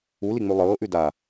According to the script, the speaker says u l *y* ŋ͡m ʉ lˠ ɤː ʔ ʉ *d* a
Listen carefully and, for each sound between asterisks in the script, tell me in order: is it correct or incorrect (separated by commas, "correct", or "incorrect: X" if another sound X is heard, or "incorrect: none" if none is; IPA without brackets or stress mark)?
incorrect: i, correct